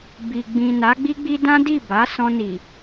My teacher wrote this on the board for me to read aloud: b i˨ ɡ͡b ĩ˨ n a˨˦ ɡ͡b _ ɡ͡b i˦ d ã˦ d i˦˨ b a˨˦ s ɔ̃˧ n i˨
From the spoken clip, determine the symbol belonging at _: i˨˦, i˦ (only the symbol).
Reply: i˦